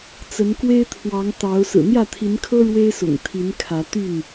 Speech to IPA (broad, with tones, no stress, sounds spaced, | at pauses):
t͡s ə˨˦ n k w e˦ ɪ̯ t̪ʰ w ɑ˨˦ ŋ t̪ ɑ˨˦ ʊ̯ s ɹ̩˨˩ n̪ j ä˥˨ t̪ʰ i˨˦ n kʰ ɤ˦ ɻ w e˦ ɪ̯ s ʊ̰˨˩ ŋ t̪ʰ i˨˦ n kʰ ä˨˦ t̪ y˥˨ n